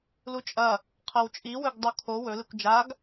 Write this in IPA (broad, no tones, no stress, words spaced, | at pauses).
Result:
lut͡ʃʼɐ | qʰɐwt͡ʃʼiwɵɡ dˤukʰo wɵlɨkʷ d͡ʒaɡ